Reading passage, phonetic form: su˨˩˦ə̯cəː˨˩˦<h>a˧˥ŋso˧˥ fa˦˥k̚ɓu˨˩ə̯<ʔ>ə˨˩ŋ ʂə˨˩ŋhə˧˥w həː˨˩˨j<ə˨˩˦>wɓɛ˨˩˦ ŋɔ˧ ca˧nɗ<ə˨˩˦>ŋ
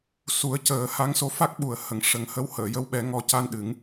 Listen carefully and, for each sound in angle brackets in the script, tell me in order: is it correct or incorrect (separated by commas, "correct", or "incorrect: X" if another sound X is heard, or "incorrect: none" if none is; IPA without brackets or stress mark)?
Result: correct, incorrect: h, incorrect: ə˧˥, incorrect: ɨ˨˩˦